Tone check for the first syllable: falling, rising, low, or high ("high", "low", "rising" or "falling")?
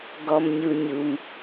low